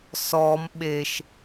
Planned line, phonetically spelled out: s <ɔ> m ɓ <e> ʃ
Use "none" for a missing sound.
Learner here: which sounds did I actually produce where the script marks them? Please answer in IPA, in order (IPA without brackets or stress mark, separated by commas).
ɔ, e